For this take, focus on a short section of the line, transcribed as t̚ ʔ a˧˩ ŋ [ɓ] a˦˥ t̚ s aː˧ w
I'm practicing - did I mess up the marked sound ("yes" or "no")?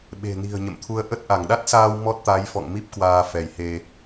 yes